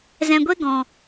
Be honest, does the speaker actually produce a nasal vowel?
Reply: yes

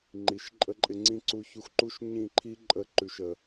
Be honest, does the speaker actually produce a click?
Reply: yes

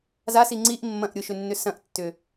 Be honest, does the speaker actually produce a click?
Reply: yes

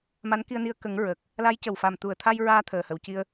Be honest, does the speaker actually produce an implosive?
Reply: no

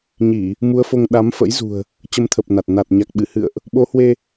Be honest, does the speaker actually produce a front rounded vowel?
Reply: no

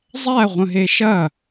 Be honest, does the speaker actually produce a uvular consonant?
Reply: yes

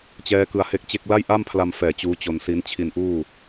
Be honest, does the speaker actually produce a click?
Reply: no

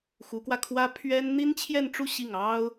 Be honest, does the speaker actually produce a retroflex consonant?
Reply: yes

